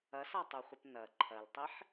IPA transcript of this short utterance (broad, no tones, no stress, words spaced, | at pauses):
ɐsatˤuχʷɘp nɐ ǃʰɐltˤiħ